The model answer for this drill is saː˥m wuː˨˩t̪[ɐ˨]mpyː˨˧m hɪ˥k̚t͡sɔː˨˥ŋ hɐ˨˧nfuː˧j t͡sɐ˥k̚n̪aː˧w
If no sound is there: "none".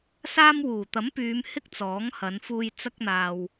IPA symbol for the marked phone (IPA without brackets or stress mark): ɐ˨˥